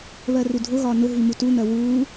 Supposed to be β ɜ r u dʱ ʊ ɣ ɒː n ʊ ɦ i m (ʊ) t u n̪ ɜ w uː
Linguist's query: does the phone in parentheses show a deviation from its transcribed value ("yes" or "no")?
yes